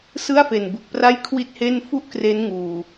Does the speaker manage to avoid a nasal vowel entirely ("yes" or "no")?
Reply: yes